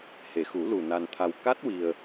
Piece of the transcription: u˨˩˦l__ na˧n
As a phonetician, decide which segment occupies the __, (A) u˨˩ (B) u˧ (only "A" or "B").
A